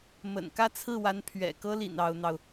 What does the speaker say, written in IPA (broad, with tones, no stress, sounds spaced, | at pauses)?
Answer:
m ə̰˨˩ n k ä˥˧ t͡sʰ ɹ̩˥˩ w a˧˥ n pʰ ɥ ɛ̰˨˩ k ɤ˥ l ḭ˨˩ n ɑ˧˥ ʊ̯ n̪ ɑ˧ ʊ̯